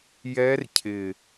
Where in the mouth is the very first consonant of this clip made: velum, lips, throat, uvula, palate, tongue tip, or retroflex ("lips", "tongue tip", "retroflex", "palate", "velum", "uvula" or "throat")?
palate